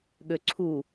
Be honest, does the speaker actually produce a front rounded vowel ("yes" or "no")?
yes